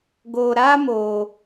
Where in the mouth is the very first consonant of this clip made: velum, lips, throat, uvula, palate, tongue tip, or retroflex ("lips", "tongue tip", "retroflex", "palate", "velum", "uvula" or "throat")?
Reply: velum